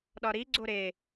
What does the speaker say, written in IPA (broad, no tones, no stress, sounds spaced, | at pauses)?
ɗ ɒ ɾ i ɡ͡ǀ o ɾ e